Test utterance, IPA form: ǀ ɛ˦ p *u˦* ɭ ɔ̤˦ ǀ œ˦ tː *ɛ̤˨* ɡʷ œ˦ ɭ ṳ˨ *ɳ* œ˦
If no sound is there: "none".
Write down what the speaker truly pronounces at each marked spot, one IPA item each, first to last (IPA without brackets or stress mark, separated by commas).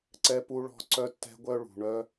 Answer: u˦, ɛ̤˦, ɳ